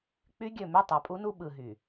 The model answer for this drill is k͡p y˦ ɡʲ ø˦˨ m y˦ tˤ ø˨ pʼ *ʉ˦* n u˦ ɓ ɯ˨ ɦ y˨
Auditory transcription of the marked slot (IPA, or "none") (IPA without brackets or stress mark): u˦